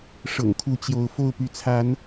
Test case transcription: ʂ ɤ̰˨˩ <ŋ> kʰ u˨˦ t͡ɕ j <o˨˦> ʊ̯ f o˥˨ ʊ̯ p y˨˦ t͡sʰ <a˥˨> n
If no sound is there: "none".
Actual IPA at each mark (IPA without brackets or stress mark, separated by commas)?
ŋ, o˨˦, a˨˦